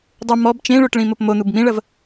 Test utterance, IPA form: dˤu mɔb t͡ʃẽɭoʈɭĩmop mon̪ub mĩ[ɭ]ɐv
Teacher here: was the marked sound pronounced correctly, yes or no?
yes